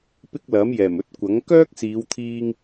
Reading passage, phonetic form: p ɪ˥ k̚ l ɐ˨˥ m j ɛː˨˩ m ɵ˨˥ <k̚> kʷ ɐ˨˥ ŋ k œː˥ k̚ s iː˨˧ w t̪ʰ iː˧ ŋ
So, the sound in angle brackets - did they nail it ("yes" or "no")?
no